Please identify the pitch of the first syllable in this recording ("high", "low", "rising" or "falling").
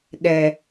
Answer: low